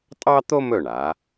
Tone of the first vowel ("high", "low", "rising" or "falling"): high